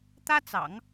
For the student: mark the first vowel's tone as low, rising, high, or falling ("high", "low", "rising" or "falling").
high